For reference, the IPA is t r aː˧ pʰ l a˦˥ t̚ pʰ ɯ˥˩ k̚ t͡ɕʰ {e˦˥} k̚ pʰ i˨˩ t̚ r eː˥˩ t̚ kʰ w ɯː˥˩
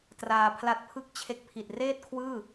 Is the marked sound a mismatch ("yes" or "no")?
no